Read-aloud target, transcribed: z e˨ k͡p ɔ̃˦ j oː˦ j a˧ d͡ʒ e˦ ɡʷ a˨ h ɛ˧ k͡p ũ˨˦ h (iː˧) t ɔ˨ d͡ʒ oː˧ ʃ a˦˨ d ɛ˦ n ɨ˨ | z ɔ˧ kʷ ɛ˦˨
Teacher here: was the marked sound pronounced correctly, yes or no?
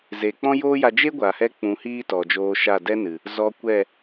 no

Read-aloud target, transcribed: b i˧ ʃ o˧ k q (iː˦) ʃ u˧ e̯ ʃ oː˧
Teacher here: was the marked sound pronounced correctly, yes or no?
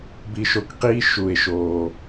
yes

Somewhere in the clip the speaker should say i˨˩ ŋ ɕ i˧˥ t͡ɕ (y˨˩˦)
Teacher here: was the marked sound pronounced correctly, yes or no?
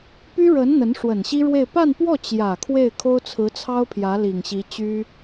no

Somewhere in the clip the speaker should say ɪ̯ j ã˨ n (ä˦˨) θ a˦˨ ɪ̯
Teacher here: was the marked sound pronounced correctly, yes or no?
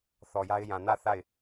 yes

